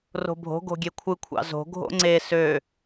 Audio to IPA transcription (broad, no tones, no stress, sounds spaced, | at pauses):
r o̤ bʱ o̤ ɡ o̤ ɡʲ e kʷʰ ɯ kʷʰ ɑ̰ z o̤ ɡʱ o̰ ŋ͡ǀ e s ø